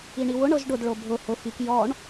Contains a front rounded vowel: no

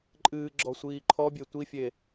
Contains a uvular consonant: no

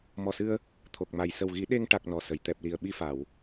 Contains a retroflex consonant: yes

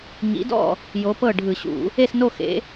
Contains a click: no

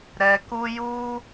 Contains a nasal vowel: no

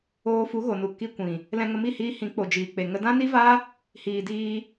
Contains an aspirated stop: no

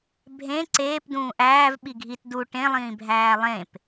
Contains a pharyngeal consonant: no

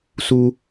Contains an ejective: no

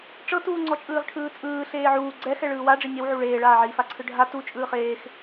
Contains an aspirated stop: yes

